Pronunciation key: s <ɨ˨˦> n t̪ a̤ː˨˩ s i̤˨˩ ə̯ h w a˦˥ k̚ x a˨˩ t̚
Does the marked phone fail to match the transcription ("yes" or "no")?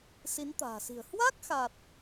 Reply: yes